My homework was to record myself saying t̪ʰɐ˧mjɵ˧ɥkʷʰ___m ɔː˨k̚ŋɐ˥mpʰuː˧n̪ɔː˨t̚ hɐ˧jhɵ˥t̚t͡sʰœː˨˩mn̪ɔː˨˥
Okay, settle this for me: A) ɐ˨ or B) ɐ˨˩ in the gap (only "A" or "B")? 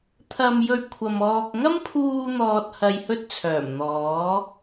A